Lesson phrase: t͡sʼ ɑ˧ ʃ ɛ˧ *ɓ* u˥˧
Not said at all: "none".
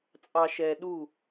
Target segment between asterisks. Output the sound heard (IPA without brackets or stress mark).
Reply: ɗ